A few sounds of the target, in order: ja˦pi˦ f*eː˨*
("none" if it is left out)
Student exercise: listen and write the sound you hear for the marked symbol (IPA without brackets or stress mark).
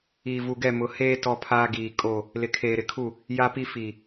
iː˨